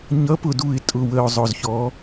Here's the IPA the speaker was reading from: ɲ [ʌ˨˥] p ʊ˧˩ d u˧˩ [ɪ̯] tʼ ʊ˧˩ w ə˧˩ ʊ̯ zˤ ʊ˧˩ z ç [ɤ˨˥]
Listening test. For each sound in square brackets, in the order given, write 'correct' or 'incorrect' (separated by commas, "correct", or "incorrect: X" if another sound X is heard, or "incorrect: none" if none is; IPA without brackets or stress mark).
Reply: correct, correct, incorrect: ɔ˨˥